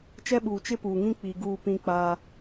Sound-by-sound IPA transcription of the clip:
t͡ʃɛ˦ɓuː˨ t͡ʃɪ˦puː˨ŋĩ˦ k͡pi˨ɡuː˦˨pĩ˦k͡paː˦

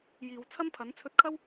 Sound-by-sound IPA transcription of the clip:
jiː˨wt͡sʰɐ˥mpʰɐ˨˥n t͡sʰɵ˧t̚kʰɐ˥w

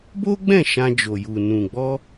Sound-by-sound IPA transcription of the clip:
bo˦ɡ͡bɛ̃˦˨ ʃã˧d͡ʒo˨ju˨ nũ˨ɡ͡bɔ˧

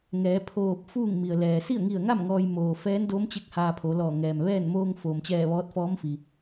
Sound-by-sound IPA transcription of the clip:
ŋɛː˩˧pʰoː˧˩p̚ fuː˥˨ŋmi˩ə̯ lɛː˩si˥˨ə̯ŋi˧˩ə̯ŋa˥˨m ŋɔː˧j moː˩fɛː˧˥ndo˧˥mt͡ɕe˧˥k̚ haː˧pʰo˩˧lɔː˧˩ ŋɛː˩mʋɛː˥˨n moː˧ŋfoː˩mt͡ɕɛː˧˩ ʋɔː˧˥t̚fɔː˧˥mfi˩

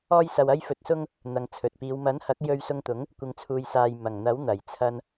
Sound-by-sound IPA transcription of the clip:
ɔː˥jsɐ˧w ɐ˥jfɵ˧t̚sʊ˥ŋ | n̪ɐ˨ŋt͡sʰɵ˨t̚piː˨˧w mɐ˨˥nhɐ˨˥k̚ jɵ˧ɥsʊ˧ŋt̪ʊ˨˥ŋ | kʷɪ˨ŋt͡sʰuː˨jsaː˨j mɐ˨˩ŋ n̪ɐ˨˥wn̪ɐ˨˩jt͡sʰɐ˧n

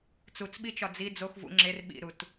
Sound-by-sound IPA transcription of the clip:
t͡sut͡sɓit͡ʃɒ d͡zi d͡zox vṵ ŋ͡ǁer ɓḭɾut

